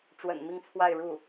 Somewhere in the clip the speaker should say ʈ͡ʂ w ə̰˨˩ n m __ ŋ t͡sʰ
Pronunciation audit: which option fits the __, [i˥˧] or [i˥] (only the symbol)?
i˥˧